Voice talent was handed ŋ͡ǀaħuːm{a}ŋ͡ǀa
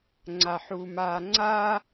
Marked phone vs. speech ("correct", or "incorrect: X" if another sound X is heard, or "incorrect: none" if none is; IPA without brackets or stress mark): incorrect: aː